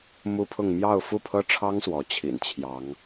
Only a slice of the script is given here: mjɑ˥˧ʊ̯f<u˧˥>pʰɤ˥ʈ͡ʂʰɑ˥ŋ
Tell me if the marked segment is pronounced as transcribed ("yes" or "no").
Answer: no